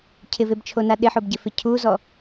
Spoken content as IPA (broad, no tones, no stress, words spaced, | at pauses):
cʰɪvebt͡ʃʰona ɗɪħobɟɪfɪ cʰuzɔ